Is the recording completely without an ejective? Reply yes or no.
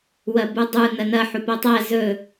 yes